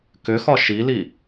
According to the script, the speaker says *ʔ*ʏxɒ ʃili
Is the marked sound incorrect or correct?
incorrect